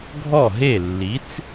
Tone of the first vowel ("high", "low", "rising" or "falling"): falling